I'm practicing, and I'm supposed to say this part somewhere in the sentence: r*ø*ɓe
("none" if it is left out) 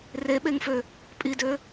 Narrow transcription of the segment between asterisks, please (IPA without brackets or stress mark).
e